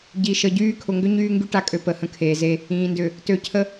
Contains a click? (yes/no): no